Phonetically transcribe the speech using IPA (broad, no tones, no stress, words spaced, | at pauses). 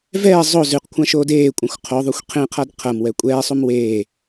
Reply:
vɛː zˤo zʉqkʷʰãʃoːd eːkʷʼɐ̃xʷ qʰoðˤuxʷ qʰẽqʰad qʰɐmwɛ kʷʼɛːsˤum weː